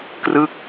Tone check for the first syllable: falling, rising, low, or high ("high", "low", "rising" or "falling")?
falling